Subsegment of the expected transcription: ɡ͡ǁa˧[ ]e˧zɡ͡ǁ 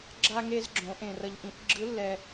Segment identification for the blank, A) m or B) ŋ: B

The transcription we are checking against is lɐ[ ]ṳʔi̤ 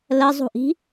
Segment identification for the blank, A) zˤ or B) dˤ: A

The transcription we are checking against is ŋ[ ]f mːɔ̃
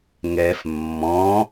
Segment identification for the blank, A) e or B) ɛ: B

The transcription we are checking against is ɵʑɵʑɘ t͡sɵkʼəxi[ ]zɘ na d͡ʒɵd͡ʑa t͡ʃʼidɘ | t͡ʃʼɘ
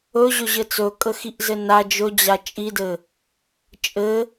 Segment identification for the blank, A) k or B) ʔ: B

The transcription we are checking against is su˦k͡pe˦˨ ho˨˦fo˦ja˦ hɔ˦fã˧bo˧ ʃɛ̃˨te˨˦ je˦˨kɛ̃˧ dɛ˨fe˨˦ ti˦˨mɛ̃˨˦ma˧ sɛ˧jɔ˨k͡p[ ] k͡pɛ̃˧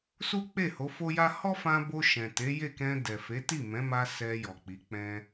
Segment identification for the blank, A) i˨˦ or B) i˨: A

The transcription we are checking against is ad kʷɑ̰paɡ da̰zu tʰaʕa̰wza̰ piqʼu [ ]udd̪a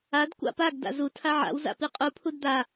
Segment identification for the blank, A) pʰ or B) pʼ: A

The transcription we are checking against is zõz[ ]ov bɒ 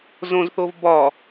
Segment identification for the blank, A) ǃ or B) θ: B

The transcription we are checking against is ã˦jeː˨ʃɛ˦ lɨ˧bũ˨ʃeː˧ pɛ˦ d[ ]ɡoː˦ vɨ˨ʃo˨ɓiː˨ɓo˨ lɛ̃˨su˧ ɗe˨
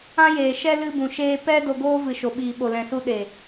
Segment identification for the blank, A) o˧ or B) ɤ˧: A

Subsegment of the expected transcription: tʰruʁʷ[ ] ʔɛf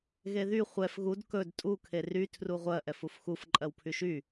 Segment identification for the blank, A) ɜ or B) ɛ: A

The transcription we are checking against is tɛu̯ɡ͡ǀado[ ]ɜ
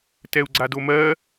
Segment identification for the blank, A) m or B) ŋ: A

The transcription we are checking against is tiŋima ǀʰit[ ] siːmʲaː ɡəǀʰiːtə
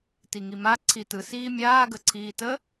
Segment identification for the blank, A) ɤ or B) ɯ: B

